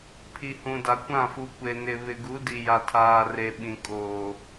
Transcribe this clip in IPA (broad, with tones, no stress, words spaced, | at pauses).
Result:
pʰi˨hũ˨da˨kʷã˦˨ fu˨ kʷe˨nɪ˨ βɪ˨ɡu˨˦di˨ ja˨tʰaː˨re˨ ɓĩ˨kʼoː˨